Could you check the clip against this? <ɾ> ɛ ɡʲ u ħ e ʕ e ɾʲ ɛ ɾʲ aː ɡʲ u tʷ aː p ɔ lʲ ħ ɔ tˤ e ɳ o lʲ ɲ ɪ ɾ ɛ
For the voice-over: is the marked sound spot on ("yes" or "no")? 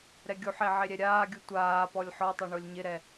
yes